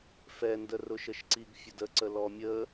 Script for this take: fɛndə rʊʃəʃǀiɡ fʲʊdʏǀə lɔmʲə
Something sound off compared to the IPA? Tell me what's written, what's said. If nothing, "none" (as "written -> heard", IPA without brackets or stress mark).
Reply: ʏ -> ə